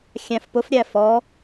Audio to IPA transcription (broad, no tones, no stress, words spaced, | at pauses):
xʲæ̃fpʊf ɾʲæfɔ